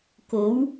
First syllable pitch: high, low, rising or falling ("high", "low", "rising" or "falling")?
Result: rising